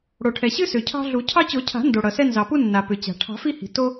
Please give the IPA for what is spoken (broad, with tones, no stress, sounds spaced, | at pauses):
ɽ o˩ ʈʰ ɛ˩ ɕ ɨ˦ s ʏ˩ cʰ ɑ̤˦ ɮ u˨˩˦ cʰ ɑ˦ t͡ɕ o˨˩˦ cʰ a̤˨˩˦ n d o˩ ɽ ʌ˩ s ɛ˦ n z ɑ˩ p u˦ nː a˩ p ʏ˩ t͡ɕ a̤˩ ʈʰ ɑ̤˨˩˦ f i˦ h i̤˩ t o˦